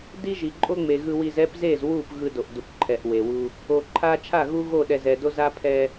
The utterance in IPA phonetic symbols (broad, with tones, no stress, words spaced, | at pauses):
di˦ ʒi˨ǃʼo˦ŋ͡me˨ ɣɯ˨wi˨z ɛ˦pze˦˨zwu˦˨p ɣɯ˦do˨ʔdu˨pǃʰɛ˨ʔ we˨wu˦ | o˨ǃʰa˦ t͡ʃʰa˦˨ɣu˦ ɣo˦˨ɗɛ˨zɛ˨do˦ za˦pʰɛ˦